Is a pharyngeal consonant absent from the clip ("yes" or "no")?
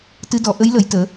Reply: yes